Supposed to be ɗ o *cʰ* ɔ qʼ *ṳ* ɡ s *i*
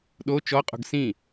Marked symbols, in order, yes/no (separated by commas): no, yes, no